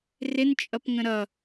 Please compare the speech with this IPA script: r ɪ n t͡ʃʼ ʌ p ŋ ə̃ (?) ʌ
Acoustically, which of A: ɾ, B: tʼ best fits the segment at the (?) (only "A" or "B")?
A